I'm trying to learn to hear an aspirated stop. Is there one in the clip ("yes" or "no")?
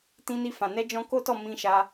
no